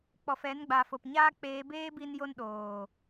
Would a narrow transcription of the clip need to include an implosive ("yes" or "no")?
yes